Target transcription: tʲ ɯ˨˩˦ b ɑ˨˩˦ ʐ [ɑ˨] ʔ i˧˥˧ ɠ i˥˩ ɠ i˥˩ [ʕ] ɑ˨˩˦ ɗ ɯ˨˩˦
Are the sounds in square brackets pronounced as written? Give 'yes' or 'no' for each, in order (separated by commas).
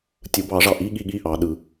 yes, no